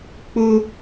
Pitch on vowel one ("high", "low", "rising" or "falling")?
high